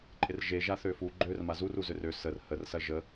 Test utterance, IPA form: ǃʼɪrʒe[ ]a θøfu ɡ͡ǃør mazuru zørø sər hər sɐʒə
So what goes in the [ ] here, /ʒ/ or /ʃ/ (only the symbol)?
ʒ